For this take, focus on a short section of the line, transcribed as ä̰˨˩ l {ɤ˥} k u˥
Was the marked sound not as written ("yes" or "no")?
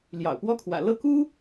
yes